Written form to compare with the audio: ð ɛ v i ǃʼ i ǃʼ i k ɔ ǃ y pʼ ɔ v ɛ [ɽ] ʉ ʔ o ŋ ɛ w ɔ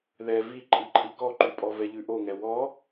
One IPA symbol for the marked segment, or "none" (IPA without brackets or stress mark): ʎ